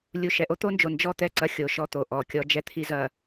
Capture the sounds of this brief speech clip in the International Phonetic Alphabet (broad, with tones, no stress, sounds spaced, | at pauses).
lʲ u˨ ʃ ɛ˨ ʔ o˦ t̪ o˦ n d͡ʒ o˨ n d͡ʒ ɔ˦ t̪ ɛ˦˨ ǀ ɐ˦ xʲ o˨ ʃ ɔ˦ t̪ o˨ ʔ ɔ˨ kʲ ɔ˦ d͡ʒ ɛ˦ t̪ʰ i˦ z ɐ˨